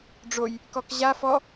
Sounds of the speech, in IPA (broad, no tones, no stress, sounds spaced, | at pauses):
ɖ͡ʐ o j | k ɔ k ʑ a f ɔ